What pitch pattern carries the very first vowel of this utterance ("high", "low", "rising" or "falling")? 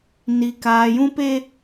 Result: low